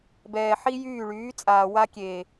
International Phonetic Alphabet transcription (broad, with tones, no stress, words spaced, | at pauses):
bɛː˨ħi˦jyː˦˨ɭyː˨˦ t͡sʼaː˨wa˧kʲeː˨